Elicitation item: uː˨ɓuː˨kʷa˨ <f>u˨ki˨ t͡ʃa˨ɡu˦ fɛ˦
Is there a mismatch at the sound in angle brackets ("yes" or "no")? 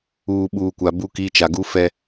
yes